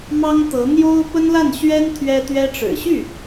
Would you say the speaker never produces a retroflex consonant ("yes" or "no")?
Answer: no